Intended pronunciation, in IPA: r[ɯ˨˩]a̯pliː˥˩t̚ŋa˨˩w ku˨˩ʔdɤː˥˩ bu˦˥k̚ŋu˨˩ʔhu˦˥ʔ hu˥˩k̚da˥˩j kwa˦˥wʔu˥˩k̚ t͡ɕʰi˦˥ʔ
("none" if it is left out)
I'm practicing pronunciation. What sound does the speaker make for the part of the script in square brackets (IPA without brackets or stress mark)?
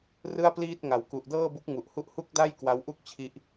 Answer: ɯ˥˩